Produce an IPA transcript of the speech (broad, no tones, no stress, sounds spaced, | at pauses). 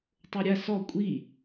tˤ o ɾʲ a s ɔ kʷʼ i